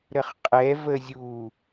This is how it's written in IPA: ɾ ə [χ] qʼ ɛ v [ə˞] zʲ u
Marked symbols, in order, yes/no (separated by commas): yes, no